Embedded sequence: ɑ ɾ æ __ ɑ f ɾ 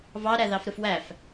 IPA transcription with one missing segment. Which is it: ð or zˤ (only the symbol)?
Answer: ð